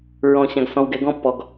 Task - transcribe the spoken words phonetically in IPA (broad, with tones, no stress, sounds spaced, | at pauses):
ɹ ɔ̃˨ ɕ ã˨ ɡ s ɔ̃˨ w ɡ ɛ˨ ɡ ɔ̃˦ pː ɔ˨ ɡ